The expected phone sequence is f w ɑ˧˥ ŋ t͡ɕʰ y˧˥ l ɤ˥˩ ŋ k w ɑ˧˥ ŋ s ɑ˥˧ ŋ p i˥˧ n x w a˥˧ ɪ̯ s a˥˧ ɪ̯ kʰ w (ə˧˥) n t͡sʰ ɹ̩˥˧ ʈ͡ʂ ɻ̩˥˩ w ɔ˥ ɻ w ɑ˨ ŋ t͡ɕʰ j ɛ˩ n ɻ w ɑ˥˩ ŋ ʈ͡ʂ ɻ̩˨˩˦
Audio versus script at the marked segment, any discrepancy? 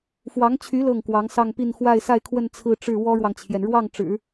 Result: yes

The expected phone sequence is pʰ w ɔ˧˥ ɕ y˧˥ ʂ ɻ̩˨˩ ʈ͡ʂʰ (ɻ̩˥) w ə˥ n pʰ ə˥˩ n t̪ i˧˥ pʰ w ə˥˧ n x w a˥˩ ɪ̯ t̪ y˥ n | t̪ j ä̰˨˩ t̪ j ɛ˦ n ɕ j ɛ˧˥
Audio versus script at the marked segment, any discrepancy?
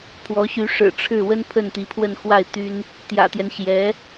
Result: yes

